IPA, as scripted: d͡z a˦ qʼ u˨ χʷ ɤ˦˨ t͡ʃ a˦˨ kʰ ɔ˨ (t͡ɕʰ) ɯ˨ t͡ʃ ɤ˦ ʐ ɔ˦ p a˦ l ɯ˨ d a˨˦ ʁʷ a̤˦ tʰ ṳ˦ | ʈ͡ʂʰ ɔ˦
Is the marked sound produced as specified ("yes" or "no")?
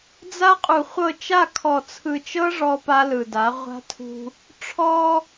no